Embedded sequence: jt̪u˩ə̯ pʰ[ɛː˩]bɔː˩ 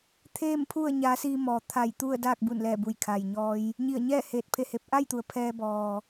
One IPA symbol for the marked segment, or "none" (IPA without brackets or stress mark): ɛː˧